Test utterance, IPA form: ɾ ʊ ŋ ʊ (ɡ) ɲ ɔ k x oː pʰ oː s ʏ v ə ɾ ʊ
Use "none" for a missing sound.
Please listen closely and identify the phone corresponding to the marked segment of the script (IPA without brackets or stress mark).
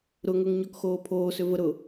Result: ŋ